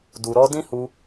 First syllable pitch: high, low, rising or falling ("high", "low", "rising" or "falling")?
low